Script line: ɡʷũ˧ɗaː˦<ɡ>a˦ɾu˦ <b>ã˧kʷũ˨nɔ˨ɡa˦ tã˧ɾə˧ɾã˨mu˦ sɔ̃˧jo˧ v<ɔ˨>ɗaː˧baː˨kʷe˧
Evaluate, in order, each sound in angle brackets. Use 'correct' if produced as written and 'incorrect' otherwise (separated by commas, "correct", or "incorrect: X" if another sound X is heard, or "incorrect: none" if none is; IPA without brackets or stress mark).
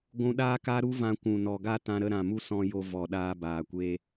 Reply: incorrect: k, incorrect: v, correct